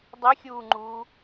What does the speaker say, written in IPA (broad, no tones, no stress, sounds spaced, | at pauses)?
dˤ ɪ xʲ uː ŋ͡ǃ uː